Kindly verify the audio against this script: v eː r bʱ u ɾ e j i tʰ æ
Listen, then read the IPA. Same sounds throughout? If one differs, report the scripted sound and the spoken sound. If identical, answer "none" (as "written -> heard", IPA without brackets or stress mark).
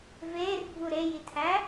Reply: none